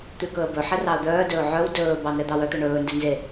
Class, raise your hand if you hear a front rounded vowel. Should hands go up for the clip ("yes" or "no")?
yes